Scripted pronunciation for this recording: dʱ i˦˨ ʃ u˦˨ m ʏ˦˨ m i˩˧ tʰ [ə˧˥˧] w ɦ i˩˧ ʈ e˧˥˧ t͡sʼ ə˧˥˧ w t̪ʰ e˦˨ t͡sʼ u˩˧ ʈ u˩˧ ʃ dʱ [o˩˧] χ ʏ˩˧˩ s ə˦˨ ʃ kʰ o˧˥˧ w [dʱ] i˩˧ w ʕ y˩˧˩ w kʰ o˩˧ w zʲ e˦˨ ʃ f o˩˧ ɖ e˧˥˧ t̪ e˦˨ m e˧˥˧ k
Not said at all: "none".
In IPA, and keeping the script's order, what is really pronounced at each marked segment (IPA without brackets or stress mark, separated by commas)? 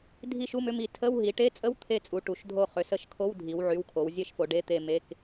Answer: ə˧˥˧, o˦˨, dʱ